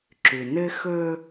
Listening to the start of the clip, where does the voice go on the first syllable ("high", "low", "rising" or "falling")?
low